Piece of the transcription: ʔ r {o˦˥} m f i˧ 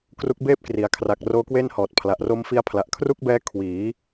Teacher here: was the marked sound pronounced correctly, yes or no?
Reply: yes